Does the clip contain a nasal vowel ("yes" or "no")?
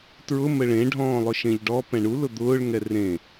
yes